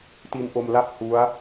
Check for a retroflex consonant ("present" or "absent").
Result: absent